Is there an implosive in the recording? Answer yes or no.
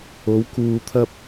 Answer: no